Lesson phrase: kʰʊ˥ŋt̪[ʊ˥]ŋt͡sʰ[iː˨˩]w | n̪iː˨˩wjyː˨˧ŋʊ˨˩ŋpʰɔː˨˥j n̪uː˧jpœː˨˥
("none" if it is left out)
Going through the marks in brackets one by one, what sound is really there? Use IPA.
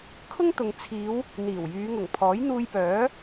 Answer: ʊ˨, iː˨˧

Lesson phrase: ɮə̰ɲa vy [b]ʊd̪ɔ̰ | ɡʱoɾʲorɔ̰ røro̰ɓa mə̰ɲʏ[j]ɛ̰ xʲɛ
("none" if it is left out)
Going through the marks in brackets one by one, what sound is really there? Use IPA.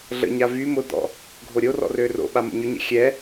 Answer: m, ɲ

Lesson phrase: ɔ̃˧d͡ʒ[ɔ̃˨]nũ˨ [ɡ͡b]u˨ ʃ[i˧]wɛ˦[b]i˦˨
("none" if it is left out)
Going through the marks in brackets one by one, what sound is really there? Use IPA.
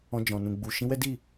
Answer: ɔ̃˨, ɡ͡b, ĩ˧, d

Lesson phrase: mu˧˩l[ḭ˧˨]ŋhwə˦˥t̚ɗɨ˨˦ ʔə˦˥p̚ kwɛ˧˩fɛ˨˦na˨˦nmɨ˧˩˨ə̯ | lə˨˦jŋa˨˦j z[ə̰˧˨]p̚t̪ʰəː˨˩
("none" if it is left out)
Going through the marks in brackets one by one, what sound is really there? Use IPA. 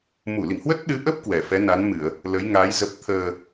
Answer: ḭ˧˨, ə˨˩

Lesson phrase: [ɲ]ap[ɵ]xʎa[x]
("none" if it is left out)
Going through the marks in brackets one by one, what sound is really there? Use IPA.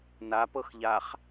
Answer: n, ɤ, χ

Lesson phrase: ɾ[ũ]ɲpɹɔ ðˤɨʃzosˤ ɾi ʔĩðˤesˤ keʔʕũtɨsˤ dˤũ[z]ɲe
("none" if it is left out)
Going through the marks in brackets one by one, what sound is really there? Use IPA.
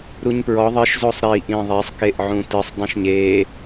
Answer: u, ʃ

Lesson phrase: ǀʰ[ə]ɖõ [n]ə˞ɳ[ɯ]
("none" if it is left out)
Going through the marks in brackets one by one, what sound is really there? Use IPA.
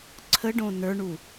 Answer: ə, n, u

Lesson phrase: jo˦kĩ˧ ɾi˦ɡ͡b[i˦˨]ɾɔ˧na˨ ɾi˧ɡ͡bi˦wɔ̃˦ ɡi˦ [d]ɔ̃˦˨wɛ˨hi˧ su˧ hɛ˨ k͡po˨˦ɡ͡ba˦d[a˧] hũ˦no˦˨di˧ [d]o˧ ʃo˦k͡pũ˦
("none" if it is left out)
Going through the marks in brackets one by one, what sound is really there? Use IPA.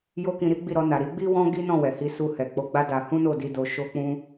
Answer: i˦˨, n, a˧, d

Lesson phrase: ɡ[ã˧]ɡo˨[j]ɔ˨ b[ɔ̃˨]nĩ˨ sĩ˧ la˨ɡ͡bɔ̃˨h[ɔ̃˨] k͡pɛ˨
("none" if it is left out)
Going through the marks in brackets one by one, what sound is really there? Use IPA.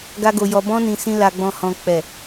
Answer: a˧, j, ɔ̃˧, ɔ̃˨

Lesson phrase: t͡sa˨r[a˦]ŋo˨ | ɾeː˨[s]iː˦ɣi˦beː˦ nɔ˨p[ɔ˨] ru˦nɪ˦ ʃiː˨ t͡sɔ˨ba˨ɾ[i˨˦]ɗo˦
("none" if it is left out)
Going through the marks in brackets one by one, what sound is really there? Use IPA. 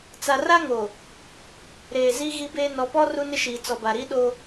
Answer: a˦, z, ɔ˦, i˦

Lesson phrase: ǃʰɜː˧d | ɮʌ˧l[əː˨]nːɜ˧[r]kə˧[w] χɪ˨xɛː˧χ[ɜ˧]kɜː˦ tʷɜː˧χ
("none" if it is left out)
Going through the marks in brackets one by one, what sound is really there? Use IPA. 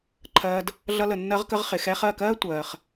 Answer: ə˨, ʁ, ʁ, ɜ˦˨

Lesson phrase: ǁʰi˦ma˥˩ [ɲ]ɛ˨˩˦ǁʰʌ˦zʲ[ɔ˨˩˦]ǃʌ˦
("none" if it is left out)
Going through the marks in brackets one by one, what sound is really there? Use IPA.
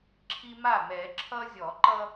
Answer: m, ɔ˨˩˦

